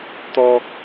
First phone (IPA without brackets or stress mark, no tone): t̪